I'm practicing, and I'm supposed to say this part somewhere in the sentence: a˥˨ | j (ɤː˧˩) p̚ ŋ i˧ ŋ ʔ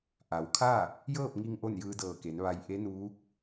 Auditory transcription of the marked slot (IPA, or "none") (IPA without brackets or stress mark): ɤː˥˨